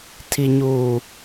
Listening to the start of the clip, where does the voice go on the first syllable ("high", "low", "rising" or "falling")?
low